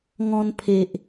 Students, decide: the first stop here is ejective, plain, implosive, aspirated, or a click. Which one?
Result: aspirated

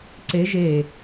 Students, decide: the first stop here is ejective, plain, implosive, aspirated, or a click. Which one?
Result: click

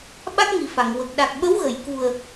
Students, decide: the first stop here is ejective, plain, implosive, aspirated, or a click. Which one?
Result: implosive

